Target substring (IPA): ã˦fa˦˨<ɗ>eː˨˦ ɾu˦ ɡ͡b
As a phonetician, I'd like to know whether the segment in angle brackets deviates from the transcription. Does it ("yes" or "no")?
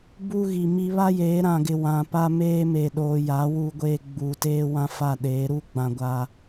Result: no